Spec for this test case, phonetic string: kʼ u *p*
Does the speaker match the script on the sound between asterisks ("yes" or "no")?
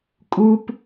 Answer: yes